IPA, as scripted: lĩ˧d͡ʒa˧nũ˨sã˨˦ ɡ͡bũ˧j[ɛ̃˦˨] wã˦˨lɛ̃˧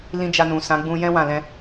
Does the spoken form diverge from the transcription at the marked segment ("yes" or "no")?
yes